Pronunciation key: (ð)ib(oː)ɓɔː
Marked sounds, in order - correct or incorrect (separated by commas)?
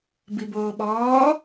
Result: incorrect, correct